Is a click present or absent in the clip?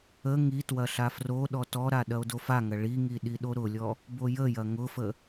absent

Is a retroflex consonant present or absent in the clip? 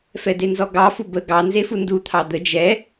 absent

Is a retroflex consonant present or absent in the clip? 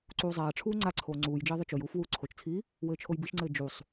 present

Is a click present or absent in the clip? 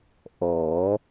absent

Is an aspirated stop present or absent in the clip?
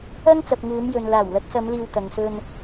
absent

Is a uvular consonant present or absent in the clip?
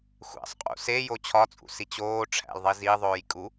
present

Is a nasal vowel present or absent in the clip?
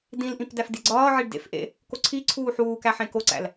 present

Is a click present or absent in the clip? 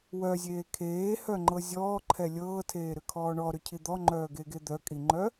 present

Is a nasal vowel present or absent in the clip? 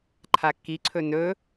absent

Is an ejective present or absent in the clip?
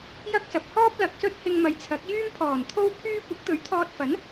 absent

